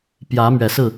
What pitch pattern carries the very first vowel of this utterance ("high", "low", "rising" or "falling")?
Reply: rising